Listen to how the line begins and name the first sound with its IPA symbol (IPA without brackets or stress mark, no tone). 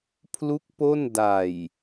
pʰ